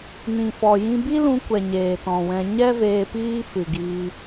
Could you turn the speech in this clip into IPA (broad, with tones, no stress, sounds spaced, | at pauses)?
n ĩ˨ f ɔ˨ j ĩ˧ b i˦ l ũ˧ kʷ ɛ˨ ɲ eː˨ t ɔ̃˨ w ɛ̃˧ ɲ ɛ˦ v eː˧ p iː˦ f ɨ˨ ɡ iː˧